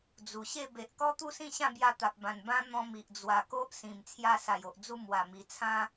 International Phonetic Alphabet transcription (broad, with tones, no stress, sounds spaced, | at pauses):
d͡z u˨˩ ɕ e˥˧ b e˨ ʔ k ɔ˦ t̪ u˥˧ s ĩ˥˧ ɕ ã˥˧ b j a˧ t̪ a˨ p̚ b ã˨˩ n b ã˦ n̪ ɔ̃˧ m i˨ ʔ d͡z w a˨˩ k o˦ ʔ s ĩ˨˩ m t͡sʰ j a˧ s a˨˩ j o˨ ʔ d͡z u˧ m w a˨˩ m i˨˩ t͡sʰ ã˦